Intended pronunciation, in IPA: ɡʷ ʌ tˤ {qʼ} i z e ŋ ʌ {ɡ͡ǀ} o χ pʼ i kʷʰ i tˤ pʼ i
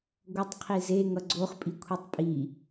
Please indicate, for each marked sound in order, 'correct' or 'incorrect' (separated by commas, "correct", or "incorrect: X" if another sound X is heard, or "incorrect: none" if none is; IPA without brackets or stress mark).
incorrect: qʰ, correct